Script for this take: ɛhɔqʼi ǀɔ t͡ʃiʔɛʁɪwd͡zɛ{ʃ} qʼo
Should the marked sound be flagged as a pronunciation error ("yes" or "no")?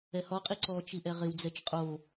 yes